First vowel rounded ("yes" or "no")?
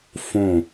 yes